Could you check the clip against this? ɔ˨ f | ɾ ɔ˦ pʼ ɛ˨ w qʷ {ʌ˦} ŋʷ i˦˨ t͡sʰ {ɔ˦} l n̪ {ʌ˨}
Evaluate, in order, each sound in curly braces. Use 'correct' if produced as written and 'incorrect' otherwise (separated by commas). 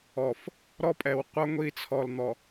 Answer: correct, incorrect, incorrect